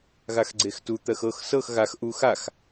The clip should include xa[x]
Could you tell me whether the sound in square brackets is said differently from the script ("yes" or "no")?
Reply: no